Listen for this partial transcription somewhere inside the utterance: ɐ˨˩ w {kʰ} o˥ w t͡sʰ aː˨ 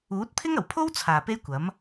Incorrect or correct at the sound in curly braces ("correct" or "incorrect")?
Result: incorrect